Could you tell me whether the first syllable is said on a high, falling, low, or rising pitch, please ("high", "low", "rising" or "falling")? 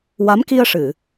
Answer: rising